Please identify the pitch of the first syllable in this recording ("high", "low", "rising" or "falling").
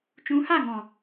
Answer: rising